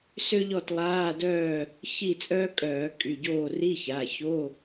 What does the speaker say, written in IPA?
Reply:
s ø˥ ʎ ɔ˥˨ t lˠ aː˧˥˧ d œː˥˨ | ç i˥˨ t͡sʼ œː˥ kʼ œː˧˩˧ kʼ y˩˧˩ ɟ oː˥˨ r i˧˥˧ ç a˩˧˩ ç o˧˥˧

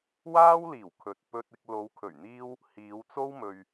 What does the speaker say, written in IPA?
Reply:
w aː˥ w l iː˨˩ w kʰ ɵ˨ t̚ p ɵ˧ t̚ ɪ˧ k̚ l o˨˧ w kʰ ɵ˨˩ ɥ n̪ iː˧ w | h iː˨˧ w t͡s o˥ w m ɵ˨ ɥ

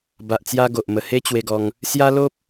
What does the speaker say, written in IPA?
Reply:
b a˨ ʔ t͡s j a˧ ɡ o˨ ʔ m ə˨˩ h e˦ t͡ɕ w e˧ ɡ ɔ˧ ŋ | s j a˦ l o˦ p̚

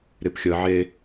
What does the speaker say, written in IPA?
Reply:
ɾ ɪ p xʲ ə ʕ e

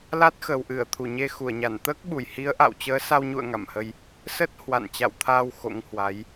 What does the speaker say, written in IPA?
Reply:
l a˦˥ t̚ x ə˨˩ w ʔ ɨ˧˩ ə̯ t̪ʰ u˧˩ ɲ e˧ x u˧˩ ə̯ ɲ a˧˩ n t̪ əː˦˥ k̚ ɓ u˧˩ j h i˨˦ ə̯ ʔ a̰˧˨ w t͡ɕ əː˨˦ s a˧ w ɲ ṵ˧˨ ə̯ ŋ a̰˧˨ m h ə˧ j | s ə˦˥ t̚ h w a̰˧˨ n t͡ɕ a̰˧˨ w t̪ʰ aː˧ w x o̰˧˥ ŋ h w a˨˦ j

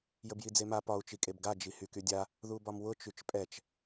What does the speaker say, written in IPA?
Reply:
j ə b j i d͡z e m a p ɒ u̯ t͡ʃ i kʼ e b ɡ a d͡ʒ i h y k y dʲ a | ð u b ɒ m w ʊ t͡ʃ y t͡ʃ pʼ ɛ t͡ʃ

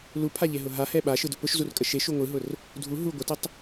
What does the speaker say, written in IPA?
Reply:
l u pʰ a ʎ e ɦ ʊ ɦ a h ɛ ɓ a ʃ ɯ d ʊ p ʊ ʃ z u r kʼ ə ʃ e ʃ u ŋʷ ɯ ɦ ʊ r | dʱ u ɦ u ɡʷ ə t ə tˤ

